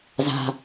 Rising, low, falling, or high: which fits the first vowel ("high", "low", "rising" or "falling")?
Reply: low